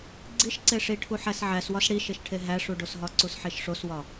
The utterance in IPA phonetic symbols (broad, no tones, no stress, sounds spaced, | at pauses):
ɡ͡ǀ i ʃ ǀ e ʂ i ʈʰ u ħ æ s ʕ æ s w ɒ s ɽ i ʃ e ʃ ʈʰ e ɦ æ ʂ u ɖ o s ɦ ɒ ǀ u s ħ e ʃ ʂ o s w ɒ